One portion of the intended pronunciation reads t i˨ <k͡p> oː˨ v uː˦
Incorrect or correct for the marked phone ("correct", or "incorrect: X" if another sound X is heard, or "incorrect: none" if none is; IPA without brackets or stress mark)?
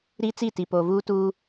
incorrect: p